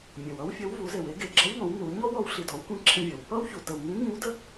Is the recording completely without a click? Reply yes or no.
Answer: no